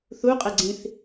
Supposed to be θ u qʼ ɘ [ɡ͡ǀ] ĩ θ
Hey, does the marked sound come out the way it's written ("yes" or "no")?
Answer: yes